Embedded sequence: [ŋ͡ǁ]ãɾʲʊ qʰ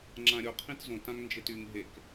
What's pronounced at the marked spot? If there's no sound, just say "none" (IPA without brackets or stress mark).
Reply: ŋ͡ǁ